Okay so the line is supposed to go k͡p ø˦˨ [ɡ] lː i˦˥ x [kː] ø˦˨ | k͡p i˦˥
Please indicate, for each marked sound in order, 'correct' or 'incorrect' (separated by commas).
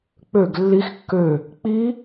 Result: correct, correct